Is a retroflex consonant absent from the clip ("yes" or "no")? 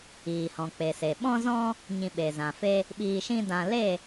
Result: yes